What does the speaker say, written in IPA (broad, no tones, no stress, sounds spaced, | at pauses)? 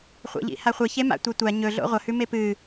χʷ a̰ ʎ ḭ h a χʷ e ç e m a̰ tʷ a tʷ a ɲ ɵ ɮ o̰ ʁʷ ɐ h ʉ m e p ɨ